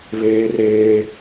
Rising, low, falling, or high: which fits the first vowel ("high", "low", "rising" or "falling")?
high